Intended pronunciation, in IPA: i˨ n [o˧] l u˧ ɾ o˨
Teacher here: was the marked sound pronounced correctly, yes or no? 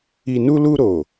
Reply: no